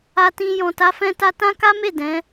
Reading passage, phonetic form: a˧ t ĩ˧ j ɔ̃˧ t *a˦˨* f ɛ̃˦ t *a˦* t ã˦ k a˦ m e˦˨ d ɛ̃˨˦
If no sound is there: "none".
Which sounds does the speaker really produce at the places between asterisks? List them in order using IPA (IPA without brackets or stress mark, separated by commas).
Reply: a˦, a˦